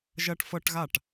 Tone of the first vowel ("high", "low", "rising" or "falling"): high